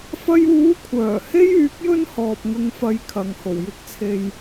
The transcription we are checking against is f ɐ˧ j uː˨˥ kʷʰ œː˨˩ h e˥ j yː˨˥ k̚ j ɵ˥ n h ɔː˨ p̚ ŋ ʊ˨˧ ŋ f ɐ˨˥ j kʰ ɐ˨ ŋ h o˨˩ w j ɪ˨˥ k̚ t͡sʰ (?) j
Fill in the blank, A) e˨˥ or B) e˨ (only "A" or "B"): B